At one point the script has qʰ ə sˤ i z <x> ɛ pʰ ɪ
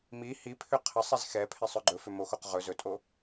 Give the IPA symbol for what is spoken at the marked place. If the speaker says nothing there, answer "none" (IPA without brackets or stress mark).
x